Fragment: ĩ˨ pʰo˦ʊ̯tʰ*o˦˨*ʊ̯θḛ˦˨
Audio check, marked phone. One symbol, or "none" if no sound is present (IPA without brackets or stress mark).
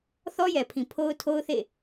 o˦